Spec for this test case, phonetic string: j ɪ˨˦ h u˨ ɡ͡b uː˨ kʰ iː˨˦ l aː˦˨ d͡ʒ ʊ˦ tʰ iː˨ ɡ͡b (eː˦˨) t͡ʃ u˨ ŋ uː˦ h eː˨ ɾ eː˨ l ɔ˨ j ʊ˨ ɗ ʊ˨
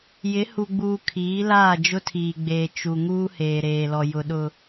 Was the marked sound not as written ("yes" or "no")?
yes